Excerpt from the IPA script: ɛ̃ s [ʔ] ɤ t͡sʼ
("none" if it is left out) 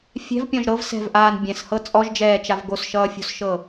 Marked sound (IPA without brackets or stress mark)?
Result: h